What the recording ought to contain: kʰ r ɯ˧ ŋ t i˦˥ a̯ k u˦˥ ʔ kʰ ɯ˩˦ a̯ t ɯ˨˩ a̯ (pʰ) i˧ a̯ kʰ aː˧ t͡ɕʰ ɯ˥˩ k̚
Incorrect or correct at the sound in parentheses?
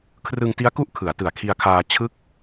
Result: incorrect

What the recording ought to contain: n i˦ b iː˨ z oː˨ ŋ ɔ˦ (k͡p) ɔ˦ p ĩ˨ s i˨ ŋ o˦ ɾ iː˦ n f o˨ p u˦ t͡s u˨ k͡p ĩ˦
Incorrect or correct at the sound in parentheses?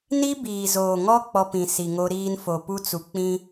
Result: correct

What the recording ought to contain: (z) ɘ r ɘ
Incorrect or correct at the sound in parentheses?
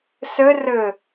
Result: incorrect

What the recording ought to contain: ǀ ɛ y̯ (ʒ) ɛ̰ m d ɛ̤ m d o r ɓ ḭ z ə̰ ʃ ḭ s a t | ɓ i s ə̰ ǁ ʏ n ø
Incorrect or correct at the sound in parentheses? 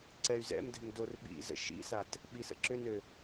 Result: incorrect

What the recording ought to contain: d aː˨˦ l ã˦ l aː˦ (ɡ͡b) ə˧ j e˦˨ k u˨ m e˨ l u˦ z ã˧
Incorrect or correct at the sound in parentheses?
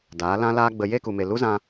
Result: correct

